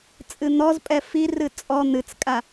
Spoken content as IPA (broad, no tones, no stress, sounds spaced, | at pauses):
t͡sʼ ɨ n̪ ɔ z pʼ ɛ f i r ɨ t͡sʼ ɔ n̪ ɨ t͡s kʼ a